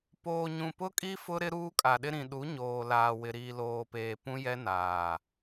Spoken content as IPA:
p oː˨ ɲ ũ˨ p ʊ˦ kʼ i˦ f ʊ˦ ɾ ɪ˦ ɾ uː˦ kʼ a˨ ɗ ɪ˦ ɾ ĩ˨ ɗ u˨˦ ɲ oː˨ l aː˨ w ɪ˨ ɾ iː˨ l oː˨ p eː˨ p ũ˦ j ɛ˦ n aː˨

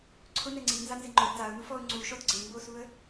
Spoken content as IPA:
ǀʰ ʊ n ɛ ŋ͡ǀ i n z a n z ɪ ŋ͡ǃ ʊ d t a ʊ̯ n u f ɔ ʊ̯ ŋ͡ǀ u ʃ ɔ d ɡ͡ǀ e m b o s u ə̯

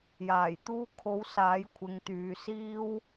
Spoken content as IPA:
j aː˨˩ j t̪ uː˧ kʰ o˨˧ w s aː˨˥ j kʷʰ ɪ˨˧ ŋ t̪ yː˨ s iː˥ w

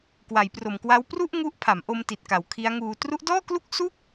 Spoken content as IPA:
k w a˩˦ j p r o˨˩ m k w a˦˥ w p r u˥˩ ʔ ŋ u˦˥ ʔ pʰ a˩˦ m ʔ o˧ m t i˨˩ t̚ k a˩˦ w kʰ i˦˥ a̯ ŋ uː˧ t r u˦˥ ʔ d ɔː˥˩ k l u˥˩ k̚ s u˥˩ k̚

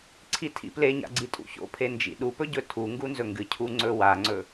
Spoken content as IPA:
ǀʰ i tʰ ḭ p l e ɲ a̰ ɡ͡ǀ i tʼ ṵ ç o̰ pʰ e n d͡ʒ ḭ ɗ u p ɵ ɟ ɵ tʰ u ŋ ɡ u n z ɵ ŋ ɡ ɨ cʰ u ŋ͡ǀ ɵ w a ŋ͡ǀ ɵ

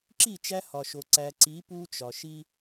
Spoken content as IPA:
ǁ i˦˨ t͡ʃ æ˦ h ɒ˨ ʃ o˨ ǀ æ˨ ǀ i˨˦ p u˦ t͡ʃ ɒ˨ ʃ i˦

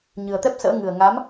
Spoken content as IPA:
ɲ ɨ˨˩ ə̯ t̪ ɛ˦˥ p̚ s ə̰ː˧˥ ŋ ɨ˨˩ ə̯ ŋ a˨˦ m

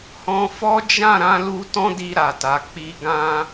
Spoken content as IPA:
h ɔ̃˧ f ɔ˦ d͡ʒ ã˦˨ ɾ ã˨˦ l u˧ t ɔ̃˦ d i˧ ɾ a˨ t a˨ k͡p i˧ ɡ ã˦

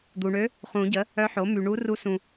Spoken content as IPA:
d̪ u˨ ɳ ø˧˥ | χ ũ˨˩˦ ɟ ə˩˥ | œ˧˥ ħ o˩˥ m y˨ ɳ u˧˥ r u˧˥ s ũ˨

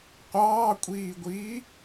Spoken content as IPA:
qʷ ɑː kʷʼ iː ɡʷ iː

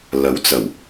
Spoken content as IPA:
l ɐ˨˥ w t͡s ɐ˨˩ w

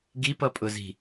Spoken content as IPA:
ɡ i p ʌ pʼ ʊ z i̤

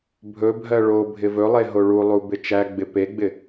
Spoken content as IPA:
bʱ ɵ bʱ ɜ ɭ o bʱ ɪ v ɵ lˠ e ɦ o ɭ u lˠ u b ɪ t͡ʃ æ ɡ͡b ɪ p e ɡ͡b ɪ

